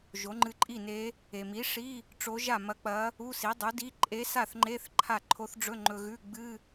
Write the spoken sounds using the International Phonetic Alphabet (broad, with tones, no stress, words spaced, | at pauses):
ʒo˩˥ŋ͡ǃɨ˧ǃʼi˥˩ne˧˥ | e˩mi˩˥ ʂi˧˥˧ | ʈ͡ʂo˧˥ʒa˥˩mɐ˧˥k͡pɐ˧˥ | u˧˥˧si˩˥dˤu˩˥di˧˥˧ ǃʼe˧˥sa˥˩θŋ͡ǃe˧˥˧θ ǃʰa˥˩ ǃʰo˧˥θɖ͡ʐɵ˧˥˧ ŋ͡ǃɵ˧ɣʉ˧˥˧ ɡ͡bɨ˧˥˧